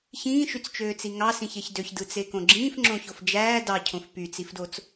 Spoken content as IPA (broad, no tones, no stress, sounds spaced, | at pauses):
ç ĩː ʃ y t͡s t͡ʃ øː t͡s i ŋ ɑ s ĩ ç e ç d ø ç d ɯ t͡s e k õ ɡ͡ǁ ĩː f ŋ͡ǁ õ ç o f d͡ʒ æː d ɑ cʰ õ f p y t͡s i f d o t͡s